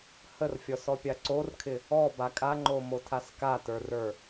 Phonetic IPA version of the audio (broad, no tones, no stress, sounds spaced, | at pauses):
h ə r fʲ ɔ s ɔ pʲ a ǀ o r kʰ ɪ | ɔ b a kʼ a ŋ͡ǃ o m o tʰ a s k a t ə˞ r ə˞